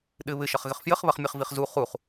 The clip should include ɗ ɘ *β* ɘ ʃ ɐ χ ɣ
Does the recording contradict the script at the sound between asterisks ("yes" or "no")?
no